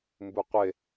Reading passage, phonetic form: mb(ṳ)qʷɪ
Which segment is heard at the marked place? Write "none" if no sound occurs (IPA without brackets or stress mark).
u